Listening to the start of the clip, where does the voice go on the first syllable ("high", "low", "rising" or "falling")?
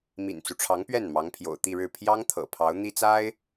low